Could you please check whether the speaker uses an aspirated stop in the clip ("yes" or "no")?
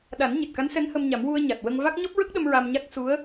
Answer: no